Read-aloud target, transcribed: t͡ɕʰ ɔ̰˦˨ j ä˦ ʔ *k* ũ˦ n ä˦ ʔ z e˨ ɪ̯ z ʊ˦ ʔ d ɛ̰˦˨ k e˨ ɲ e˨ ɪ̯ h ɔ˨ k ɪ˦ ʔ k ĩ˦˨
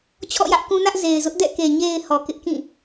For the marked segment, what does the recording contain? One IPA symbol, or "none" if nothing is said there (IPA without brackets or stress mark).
k